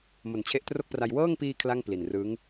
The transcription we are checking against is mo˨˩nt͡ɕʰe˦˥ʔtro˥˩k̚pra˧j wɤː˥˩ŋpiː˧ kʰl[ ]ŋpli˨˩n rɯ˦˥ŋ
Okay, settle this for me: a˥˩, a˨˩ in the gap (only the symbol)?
a˥˩